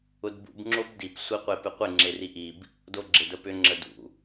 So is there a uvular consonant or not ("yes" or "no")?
yes